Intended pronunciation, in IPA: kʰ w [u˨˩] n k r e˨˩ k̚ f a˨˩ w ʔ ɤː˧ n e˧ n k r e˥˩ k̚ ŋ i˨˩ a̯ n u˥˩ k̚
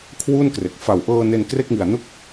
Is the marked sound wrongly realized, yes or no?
yes